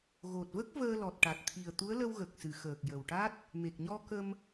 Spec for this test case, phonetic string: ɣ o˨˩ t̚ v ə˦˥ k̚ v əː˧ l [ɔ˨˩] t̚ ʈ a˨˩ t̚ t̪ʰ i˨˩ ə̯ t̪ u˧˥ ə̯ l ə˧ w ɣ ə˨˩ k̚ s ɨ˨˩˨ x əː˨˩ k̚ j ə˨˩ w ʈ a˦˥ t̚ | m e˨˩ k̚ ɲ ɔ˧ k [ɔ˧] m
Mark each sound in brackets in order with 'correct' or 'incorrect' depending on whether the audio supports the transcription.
correct, incorrect: ə˧

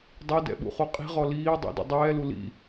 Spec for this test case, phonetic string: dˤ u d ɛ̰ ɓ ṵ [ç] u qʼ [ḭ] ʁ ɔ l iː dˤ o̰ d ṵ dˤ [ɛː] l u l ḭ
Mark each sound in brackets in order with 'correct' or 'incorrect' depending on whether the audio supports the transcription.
incorrect: χ, incorrect: i̤, correct

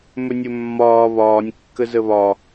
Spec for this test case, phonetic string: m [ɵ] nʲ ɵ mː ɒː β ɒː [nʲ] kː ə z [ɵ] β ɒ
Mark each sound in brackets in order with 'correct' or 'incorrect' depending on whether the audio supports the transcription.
correct, correct, incorrect: ə

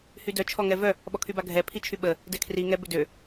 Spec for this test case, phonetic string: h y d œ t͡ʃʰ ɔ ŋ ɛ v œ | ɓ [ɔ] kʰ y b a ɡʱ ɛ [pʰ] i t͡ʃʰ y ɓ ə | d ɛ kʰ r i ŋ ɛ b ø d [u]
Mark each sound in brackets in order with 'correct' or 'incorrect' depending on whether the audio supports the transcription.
correct, correct, incorrect: ø

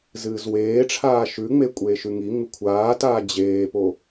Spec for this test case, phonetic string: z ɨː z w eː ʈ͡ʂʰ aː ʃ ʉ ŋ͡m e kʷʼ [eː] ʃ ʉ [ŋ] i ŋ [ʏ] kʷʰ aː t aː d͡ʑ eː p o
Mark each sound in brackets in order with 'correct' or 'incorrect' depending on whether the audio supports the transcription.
correct, correct, incorrect: u

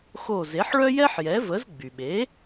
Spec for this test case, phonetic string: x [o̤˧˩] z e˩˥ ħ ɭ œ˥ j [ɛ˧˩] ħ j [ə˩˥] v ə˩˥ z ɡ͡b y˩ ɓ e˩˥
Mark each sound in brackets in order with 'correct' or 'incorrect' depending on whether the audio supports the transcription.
incorrect: o˧˩, incorrect: ɛ˥, incorrect: ɛ˩˥

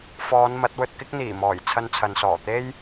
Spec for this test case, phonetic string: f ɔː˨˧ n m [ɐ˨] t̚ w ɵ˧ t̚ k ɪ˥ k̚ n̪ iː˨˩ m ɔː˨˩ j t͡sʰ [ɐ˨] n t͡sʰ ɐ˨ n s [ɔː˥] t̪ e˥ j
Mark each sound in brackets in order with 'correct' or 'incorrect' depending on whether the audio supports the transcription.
incorrect: ɐ˨˥, incorrect: ɐ˧, incorrect: ɔː˨˩

